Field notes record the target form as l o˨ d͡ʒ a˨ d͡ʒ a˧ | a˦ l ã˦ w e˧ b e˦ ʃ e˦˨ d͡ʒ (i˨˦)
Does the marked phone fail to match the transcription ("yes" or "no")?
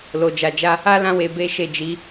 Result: no